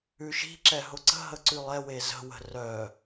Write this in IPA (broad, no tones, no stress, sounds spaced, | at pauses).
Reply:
ʉ ʃ i̤ ǁ ɛ ɦ ʊ ǀ ə̤ ɦ ə ǀ ʉ lˠ ɛ w e z ə̤ w ə̤ r œ